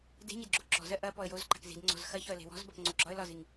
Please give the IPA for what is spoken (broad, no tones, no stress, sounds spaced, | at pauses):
d e̤ ɲ e d ɡ͡ǁ o ǁ ɔ̤ z ɜ ʔ ɐ p ɔ ə̯ j o z ǃ a̤ k z i̤ d ŋ͡ǀ ɔ̤ z x ɐ ç ɒ ə̯ l e̤ w ɔ̤ z b ɐ p ŋ͡ǀ o ɡ͡ǁ ɒ ə̯ l ɒ z i ŋ